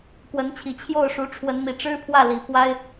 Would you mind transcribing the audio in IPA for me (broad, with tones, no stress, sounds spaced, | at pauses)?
k w ə˧˥ n t͡ɕʰ i˨˩ t͡ɕʰ j o˥˩ ʊ̯ ʂ u˧˥ ʈ͡ʂʰ w ə˧˥ n m i˨˩ ʈ͡ʂ ɻ̩˥ pʰ w ä˥˩ l i˨˩ pʰ w a˥ ɪ̯